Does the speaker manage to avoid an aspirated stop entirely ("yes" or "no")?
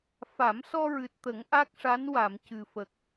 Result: yes